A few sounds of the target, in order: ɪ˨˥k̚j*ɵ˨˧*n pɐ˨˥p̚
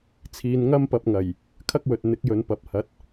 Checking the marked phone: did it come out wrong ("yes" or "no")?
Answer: no